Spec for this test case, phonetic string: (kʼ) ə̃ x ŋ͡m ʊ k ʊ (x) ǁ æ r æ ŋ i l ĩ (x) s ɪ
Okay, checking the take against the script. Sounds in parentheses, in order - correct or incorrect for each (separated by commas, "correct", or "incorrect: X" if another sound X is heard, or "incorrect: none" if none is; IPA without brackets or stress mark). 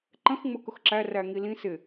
incorrect: ǃ, correct, incorrect: none